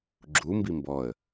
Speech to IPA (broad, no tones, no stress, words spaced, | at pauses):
ɡ͡ǁumbi mbɔə̯